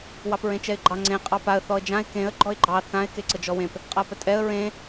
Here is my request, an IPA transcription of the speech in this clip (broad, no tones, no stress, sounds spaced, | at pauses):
w ɑ p ɹ ẽ t͡ʃ ɛ ɪ̯ ɡ͡ǃ ɑ ŋ͡ǀ ẽ qʼ ɑ p a ə̯ θ ɔ ə̯ d͡ʒ ã ɪ̯ k ẽ ə̯ ɡ͡ǃ ɔ ɪ̯ ɡ͡ǃ ɑ θ ã ɪ̯ k e ǀ ə d͡ʒ ɔ w ẽ p | qʼ a p ə tʼ ɛ ə̯ ɹ ẽ